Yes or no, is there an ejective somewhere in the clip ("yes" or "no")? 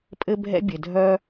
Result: yes